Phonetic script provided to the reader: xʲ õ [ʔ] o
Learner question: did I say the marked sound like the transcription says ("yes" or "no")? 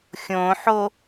no